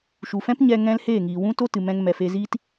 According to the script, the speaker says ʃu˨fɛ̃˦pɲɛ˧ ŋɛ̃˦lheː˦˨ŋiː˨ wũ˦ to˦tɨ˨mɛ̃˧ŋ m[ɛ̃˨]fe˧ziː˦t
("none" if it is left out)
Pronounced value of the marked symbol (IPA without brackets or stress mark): ɛ˨